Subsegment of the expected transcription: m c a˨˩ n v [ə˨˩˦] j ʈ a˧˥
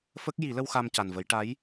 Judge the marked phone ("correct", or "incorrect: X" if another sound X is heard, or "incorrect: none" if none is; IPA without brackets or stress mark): correct